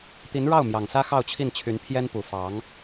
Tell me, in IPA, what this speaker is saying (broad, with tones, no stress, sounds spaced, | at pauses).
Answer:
t̪ i˧˥ n ɻ ɑ˥˩ ʊ̯ m j ɑ˨˩ ŋ s ä˥ x ɑ˥˧ ʊ̯ t͡ɕʰ i˥˩ n t͡ɕʰ y˧˥ n pʰ j ɛ˥ n p u˨˩ f ɑ˧˥ ŋ